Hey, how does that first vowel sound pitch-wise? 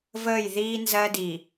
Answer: falling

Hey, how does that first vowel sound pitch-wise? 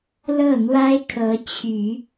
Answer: falling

